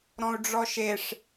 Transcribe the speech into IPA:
ɾ ɔ̃ u̯ ɖ͡ʐ ɔ ʃ e ʂ

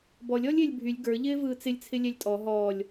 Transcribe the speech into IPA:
b ɔ lʲ ɔ lʲ ɪː lʲ bʱ y lʲ ɡ ə˞ ʎ ɪː v ɯː t͡s ɪ lʲ t͡sʰ ɪ lʲ ɛ lʲ tʼ ɔ ɦ ɔː lʲ

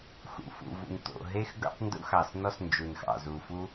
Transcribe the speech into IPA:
x ṵ˩ f ṵ˩ v ṵ˩ n t̪ o̰˩ ɦ e˥ x ɡ o̰˥ tˤ n d ṵ˥ x ɑ˩ s n ɔ˥ s n d͡ʒ u˩ n x ɑ̰˩ z u˩ f u˥

